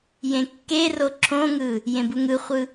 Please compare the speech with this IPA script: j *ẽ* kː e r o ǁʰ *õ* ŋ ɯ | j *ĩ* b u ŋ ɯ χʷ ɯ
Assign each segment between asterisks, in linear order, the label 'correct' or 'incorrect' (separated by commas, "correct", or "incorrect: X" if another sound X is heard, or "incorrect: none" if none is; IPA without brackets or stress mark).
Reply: correct, correct, incorrect: ẽ